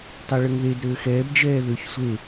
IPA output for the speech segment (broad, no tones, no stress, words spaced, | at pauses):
tˤɛɭəŋðed ɾøːxɛːb d͡ʒɛːðøç sʷe